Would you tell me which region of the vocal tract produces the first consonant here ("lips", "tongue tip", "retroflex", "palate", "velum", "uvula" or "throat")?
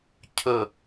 palate